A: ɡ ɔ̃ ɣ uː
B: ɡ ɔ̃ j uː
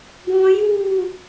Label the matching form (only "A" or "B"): B